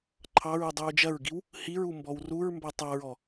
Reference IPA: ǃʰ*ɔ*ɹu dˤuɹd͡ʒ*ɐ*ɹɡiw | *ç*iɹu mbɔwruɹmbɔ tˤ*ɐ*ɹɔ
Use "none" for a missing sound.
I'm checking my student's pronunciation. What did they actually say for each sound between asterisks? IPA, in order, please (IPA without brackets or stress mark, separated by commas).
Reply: ɑ, ɐ, h, ɑ